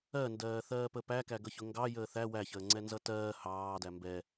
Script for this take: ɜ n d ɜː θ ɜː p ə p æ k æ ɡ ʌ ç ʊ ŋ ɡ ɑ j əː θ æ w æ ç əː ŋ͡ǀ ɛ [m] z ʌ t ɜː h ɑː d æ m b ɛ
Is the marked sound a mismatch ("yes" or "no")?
yes